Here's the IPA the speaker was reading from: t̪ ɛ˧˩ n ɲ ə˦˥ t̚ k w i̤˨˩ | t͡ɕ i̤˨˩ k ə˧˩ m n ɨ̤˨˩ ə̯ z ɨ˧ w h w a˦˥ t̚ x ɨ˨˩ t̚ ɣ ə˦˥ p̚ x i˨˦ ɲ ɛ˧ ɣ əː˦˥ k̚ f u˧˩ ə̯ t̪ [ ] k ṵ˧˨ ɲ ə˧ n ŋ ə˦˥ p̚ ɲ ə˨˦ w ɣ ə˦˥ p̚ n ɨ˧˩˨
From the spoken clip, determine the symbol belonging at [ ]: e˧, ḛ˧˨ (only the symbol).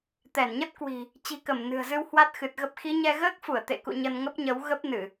ḛ˧˨